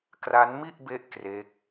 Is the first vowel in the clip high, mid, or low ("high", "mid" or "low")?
low